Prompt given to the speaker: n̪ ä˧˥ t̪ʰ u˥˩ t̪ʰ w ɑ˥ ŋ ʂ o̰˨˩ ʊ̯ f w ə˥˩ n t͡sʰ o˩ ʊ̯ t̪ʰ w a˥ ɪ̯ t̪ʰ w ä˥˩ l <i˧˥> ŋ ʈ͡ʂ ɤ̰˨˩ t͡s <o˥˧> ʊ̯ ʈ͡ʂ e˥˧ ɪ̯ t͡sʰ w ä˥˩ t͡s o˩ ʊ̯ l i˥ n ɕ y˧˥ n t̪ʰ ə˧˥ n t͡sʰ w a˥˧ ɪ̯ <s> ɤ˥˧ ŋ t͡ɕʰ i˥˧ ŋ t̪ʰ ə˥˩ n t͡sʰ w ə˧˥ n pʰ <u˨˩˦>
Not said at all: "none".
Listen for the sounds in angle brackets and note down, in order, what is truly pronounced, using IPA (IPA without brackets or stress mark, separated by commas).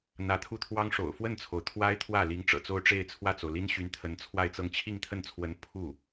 i˧˥, o˥˧, t͡s, u˥˩